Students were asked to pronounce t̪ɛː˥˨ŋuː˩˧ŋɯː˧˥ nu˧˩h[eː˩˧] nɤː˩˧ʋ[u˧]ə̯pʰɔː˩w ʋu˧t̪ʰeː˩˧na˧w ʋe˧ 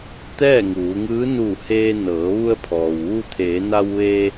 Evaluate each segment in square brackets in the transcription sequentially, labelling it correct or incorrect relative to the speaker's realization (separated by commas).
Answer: incorrect, correct